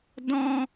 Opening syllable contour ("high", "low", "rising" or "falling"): high